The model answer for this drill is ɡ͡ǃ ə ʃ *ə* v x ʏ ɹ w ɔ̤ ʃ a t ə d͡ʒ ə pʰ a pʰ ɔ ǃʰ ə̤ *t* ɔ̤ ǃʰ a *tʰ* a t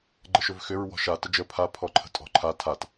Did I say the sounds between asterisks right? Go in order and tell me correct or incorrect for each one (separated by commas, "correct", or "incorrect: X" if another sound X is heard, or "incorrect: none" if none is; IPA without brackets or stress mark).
incorrect: ʏ, incorrect: tʼ, correct